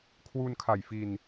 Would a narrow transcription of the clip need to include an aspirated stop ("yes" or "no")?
yes